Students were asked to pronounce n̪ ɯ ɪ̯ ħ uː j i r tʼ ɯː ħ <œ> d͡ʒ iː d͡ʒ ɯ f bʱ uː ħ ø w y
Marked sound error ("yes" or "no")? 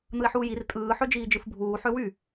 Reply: yes